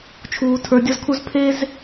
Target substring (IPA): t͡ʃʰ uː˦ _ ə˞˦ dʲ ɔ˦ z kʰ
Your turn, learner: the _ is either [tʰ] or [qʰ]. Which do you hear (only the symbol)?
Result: tʰ